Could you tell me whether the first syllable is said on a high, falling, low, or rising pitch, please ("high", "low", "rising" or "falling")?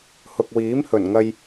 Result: low